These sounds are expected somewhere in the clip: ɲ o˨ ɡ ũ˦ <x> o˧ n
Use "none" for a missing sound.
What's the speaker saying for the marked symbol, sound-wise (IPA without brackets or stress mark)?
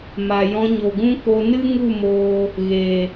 k